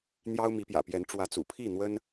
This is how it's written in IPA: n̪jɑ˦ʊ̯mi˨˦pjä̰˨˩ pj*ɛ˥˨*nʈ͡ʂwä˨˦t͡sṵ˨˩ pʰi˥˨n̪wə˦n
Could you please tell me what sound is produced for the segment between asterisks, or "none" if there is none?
ɛ˨˦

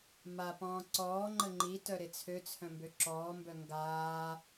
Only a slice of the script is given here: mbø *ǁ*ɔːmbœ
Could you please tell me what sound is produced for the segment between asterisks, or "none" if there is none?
ǁ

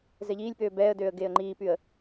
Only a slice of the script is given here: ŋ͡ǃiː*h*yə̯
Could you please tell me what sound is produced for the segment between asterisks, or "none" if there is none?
p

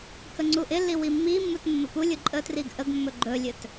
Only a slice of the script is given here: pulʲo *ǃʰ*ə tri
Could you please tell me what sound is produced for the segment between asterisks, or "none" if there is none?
ǃʼ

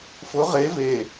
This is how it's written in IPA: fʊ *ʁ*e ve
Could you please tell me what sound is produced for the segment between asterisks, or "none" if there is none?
ʁ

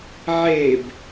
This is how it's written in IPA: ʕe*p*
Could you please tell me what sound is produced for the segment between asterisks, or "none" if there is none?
b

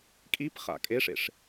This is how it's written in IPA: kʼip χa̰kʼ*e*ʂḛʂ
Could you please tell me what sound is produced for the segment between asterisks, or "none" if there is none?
e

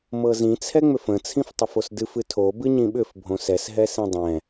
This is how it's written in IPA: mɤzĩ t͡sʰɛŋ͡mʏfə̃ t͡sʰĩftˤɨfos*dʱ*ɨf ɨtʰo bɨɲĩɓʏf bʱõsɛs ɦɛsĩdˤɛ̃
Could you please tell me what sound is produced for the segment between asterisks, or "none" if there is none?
d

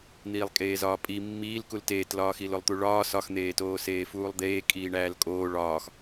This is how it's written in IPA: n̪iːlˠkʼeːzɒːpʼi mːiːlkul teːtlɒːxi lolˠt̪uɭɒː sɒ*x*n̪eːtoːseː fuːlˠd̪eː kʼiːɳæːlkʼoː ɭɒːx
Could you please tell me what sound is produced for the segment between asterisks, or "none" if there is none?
x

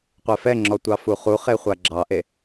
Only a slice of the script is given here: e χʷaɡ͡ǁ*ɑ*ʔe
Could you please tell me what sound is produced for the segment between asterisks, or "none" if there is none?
ɑ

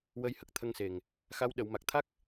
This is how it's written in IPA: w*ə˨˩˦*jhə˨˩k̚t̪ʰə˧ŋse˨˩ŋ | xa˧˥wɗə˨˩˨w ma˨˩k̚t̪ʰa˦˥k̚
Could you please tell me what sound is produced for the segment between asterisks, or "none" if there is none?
ə˧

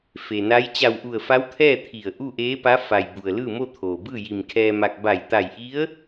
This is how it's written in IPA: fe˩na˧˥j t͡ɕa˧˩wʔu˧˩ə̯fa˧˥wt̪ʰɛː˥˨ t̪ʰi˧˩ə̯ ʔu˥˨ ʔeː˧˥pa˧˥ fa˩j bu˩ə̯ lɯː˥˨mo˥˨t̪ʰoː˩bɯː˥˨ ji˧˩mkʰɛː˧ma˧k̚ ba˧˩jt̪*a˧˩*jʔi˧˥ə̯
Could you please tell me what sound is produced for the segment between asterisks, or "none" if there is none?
a˧˩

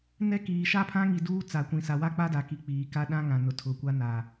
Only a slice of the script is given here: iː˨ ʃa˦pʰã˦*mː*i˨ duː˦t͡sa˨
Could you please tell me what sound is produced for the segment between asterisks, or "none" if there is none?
ŋ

